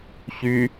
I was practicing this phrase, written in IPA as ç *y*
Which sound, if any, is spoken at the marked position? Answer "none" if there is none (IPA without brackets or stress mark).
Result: y